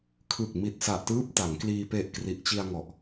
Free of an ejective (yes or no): yes